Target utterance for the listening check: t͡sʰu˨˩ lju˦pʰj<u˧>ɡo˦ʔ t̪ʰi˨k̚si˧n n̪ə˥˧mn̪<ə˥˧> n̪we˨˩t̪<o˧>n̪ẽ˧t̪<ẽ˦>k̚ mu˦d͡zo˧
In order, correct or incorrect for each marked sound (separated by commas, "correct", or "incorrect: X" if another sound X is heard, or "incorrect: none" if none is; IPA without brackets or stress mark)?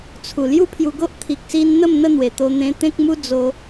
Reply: correct, correct, correct, correct